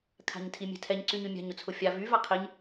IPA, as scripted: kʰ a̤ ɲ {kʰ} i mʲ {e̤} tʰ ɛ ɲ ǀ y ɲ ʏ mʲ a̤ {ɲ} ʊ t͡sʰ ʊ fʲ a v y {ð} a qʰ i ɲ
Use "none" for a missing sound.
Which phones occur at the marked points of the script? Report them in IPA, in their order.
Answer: tʰ, ɛ̤, ɲ, v

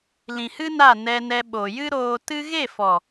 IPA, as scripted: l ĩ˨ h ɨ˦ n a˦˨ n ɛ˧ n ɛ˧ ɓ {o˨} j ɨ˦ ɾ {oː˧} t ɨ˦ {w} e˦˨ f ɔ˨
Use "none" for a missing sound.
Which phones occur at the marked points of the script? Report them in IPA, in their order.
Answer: o˨, oː˧, ɣ

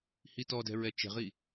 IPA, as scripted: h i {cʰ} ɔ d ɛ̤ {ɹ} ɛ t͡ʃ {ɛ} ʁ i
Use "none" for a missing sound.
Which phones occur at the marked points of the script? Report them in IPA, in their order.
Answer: t, ɹ, ɛ̤

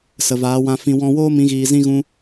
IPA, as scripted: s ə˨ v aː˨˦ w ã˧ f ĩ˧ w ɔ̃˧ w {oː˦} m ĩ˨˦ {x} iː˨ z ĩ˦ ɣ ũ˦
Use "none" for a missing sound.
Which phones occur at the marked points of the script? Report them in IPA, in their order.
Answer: oː˦, ɣ

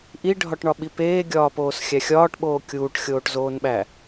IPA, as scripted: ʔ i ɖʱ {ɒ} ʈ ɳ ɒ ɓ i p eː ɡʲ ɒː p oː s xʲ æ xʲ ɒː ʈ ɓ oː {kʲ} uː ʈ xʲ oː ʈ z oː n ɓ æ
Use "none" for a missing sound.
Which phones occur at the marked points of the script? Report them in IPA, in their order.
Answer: ɒ, kʲ

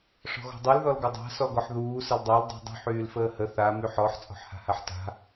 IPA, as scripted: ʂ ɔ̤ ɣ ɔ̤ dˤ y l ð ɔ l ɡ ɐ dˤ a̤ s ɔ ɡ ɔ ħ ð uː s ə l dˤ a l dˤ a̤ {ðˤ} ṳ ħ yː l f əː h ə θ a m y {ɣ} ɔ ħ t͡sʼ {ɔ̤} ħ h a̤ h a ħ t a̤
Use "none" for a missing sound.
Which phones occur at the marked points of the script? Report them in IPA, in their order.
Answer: dˤ, ħ, ɔ̤

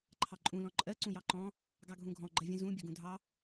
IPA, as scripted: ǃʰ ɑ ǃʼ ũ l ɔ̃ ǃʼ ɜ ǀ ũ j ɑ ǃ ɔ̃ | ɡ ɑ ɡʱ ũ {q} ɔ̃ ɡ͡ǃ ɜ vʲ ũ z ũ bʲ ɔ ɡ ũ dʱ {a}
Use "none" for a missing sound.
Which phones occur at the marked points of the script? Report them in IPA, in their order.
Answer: ɡʱ, ɑ

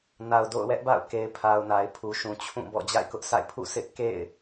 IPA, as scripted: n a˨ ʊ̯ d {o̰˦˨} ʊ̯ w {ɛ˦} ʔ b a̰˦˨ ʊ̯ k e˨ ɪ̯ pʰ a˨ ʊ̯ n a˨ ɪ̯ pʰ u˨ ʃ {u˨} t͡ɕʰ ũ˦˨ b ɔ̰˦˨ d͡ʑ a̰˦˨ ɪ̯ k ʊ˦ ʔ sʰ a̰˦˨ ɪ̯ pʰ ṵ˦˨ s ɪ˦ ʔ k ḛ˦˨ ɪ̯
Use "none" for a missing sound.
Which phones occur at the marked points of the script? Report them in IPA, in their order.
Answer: o̰˦˨, ɛ˦, ũ˨

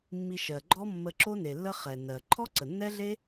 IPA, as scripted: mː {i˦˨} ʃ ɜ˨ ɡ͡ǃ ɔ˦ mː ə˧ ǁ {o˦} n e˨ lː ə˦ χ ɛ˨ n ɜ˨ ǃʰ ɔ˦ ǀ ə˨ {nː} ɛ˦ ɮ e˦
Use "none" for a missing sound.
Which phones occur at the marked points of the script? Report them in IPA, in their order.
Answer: i˧, o˦, nː

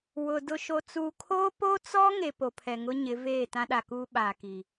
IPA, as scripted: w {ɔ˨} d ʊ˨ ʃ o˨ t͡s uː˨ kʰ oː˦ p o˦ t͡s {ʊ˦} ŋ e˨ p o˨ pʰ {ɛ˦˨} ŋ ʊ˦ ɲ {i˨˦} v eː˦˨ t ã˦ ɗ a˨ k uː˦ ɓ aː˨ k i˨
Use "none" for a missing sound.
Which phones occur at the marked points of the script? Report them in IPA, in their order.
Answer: ʊ˨, ɔ˦, ɛ˨, ɪ˨˦

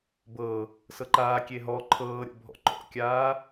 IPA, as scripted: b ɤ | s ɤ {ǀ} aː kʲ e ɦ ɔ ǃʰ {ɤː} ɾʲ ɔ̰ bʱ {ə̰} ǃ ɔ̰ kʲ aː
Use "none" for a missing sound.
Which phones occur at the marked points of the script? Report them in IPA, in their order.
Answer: ǃ, ɤː, ɔ̰

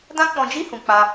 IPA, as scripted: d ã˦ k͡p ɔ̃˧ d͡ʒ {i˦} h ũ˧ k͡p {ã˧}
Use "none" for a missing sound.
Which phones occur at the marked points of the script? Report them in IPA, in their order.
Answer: i˦, a˧

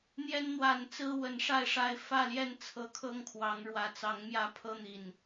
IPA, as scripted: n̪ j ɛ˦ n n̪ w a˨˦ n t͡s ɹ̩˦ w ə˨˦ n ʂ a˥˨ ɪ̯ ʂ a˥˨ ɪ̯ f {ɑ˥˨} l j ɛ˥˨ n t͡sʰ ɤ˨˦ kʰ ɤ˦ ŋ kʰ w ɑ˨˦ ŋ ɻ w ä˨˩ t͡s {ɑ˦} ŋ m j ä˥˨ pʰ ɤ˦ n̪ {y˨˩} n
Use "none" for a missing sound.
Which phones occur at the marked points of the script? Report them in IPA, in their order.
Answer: ä˥˨, ɑ˨˦, i˨˩

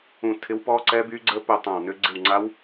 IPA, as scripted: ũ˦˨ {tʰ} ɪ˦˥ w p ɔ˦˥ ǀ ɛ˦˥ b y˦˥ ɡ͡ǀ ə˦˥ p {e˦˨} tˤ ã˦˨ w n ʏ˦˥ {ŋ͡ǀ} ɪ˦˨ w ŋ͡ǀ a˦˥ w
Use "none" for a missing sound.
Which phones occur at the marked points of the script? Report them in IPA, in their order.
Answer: tʰ, ø˦˨, ɡ͡ǀ

